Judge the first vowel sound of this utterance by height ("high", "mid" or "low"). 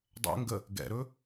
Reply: mid